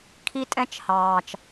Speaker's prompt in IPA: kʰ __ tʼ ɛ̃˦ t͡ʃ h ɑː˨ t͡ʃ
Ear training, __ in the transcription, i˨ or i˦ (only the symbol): i˦